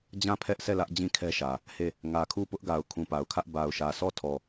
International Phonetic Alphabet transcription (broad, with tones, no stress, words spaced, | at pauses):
d͡ʑã˦˨pʰɛ˦ʔsɛ˦˨lä˦ʔ d͡ʑĩ˦˨kʰɛ˦ʃä˨ | he˦˨ | ŋä˨kʰu˦˨pʊ˦ʔɡa˨ʊ̯ kʰũ˨pa˨ʊ̯kʰä˦ʔ ba˨ʊ̯ʃä˨sɔ˦˨ tʰɔ˦˨